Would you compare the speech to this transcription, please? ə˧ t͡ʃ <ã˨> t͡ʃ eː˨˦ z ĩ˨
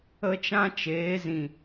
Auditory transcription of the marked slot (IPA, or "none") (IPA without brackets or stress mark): ã˦